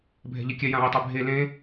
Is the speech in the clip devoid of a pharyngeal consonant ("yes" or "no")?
yes